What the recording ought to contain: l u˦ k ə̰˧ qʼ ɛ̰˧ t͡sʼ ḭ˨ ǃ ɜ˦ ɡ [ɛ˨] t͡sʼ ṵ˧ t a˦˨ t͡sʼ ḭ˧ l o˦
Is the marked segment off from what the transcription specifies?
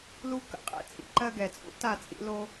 no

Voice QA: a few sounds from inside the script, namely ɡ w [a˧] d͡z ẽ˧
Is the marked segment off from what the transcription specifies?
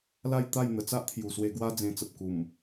yes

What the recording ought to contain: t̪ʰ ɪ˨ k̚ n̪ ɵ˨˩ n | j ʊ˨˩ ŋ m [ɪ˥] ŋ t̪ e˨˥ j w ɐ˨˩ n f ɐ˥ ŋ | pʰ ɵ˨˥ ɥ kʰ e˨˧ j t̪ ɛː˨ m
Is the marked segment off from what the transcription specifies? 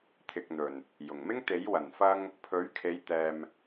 no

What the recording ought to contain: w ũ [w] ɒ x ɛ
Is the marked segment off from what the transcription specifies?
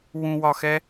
no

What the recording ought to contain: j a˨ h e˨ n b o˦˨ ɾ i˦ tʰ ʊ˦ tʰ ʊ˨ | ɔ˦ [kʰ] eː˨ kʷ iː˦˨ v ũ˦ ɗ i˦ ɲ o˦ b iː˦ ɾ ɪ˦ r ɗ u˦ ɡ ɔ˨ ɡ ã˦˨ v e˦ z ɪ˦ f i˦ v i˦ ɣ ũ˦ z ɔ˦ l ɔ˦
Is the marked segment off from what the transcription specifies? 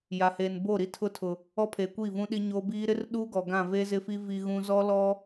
yes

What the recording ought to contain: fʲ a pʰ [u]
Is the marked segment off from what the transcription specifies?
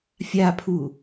no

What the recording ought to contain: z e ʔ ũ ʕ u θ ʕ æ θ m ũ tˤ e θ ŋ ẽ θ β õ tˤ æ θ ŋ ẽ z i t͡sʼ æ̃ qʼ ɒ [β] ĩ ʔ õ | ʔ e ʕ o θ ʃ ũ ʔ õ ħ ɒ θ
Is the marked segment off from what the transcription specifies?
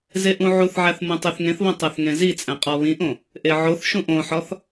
no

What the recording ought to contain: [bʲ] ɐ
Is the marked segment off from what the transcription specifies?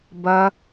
yes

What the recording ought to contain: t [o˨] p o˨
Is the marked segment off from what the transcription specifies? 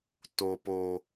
no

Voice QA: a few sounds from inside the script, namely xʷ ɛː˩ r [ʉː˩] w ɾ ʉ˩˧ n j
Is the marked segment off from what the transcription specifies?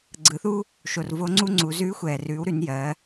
yes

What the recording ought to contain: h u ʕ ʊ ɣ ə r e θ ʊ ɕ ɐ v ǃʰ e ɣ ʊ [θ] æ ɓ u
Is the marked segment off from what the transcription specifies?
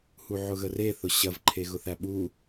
no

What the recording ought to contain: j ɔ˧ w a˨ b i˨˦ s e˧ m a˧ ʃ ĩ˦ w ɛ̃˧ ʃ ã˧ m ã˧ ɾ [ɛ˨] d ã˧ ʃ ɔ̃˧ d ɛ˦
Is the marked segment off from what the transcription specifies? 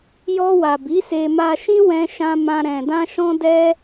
yes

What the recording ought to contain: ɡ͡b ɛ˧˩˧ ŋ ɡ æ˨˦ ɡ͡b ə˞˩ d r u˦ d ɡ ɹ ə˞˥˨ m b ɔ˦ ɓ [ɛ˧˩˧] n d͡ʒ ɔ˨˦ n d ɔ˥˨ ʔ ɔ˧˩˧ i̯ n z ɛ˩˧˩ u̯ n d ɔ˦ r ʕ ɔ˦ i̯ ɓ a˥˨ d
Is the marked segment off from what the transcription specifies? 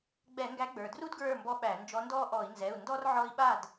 yes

